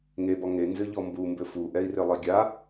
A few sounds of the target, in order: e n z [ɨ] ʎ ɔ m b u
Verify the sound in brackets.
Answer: correct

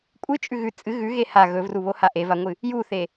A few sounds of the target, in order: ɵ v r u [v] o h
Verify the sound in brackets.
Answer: incorrect: β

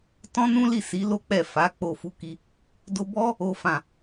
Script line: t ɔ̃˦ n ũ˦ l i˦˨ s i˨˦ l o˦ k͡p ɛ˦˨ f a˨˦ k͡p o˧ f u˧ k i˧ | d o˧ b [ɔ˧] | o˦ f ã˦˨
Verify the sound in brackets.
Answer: incorrect: ɔ˦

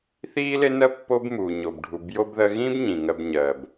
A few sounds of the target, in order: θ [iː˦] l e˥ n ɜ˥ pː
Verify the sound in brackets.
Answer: incorrect: iː˥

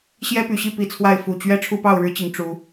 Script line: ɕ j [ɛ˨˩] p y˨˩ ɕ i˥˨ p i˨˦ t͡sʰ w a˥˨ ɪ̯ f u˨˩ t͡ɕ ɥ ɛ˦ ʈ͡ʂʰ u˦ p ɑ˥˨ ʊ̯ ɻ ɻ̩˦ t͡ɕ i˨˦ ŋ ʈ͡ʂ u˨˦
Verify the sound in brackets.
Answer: incorrect: ɛ˦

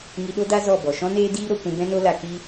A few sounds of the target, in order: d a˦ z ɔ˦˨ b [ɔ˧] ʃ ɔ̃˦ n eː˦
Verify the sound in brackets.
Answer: incorrect: ɔ˨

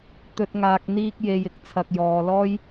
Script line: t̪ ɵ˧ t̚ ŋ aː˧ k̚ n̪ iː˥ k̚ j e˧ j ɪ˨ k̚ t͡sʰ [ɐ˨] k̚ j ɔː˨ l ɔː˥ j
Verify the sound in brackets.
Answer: correct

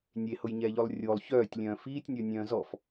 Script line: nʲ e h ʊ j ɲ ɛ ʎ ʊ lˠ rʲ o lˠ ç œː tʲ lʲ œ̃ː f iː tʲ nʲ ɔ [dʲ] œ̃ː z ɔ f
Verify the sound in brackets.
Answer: incorrect: nʲ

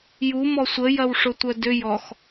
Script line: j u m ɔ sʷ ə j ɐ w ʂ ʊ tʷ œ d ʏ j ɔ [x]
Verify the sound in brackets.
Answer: correct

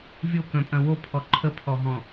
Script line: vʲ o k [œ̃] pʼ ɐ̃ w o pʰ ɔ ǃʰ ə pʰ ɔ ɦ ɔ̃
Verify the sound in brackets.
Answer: correct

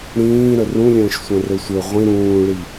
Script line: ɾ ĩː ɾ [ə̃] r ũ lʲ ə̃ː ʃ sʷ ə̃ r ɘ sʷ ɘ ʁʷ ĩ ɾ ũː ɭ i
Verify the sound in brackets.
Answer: incorrect: ə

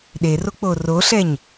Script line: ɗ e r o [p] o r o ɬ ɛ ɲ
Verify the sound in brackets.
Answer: incorrect: k͡p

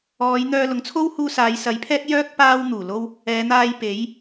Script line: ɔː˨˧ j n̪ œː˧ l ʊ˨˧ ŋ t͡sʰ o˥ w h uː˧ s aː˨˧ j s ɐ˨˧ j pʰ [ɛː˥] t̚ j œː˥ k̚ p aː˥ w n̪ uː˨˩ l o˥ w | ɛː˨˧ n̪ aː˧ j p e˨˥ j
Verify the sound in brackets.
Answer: correct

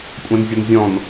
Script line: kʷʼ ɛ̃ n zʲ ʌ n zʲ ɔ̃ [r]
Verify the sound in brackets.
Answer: incorrect: n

